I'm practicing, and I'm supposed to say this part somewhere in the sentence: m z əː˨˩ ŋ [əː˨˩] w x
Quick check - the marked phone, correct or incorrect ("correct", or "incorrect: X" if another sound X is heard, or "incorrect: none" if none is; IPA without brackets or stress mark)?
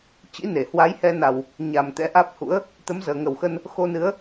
incorrect: ə˨˩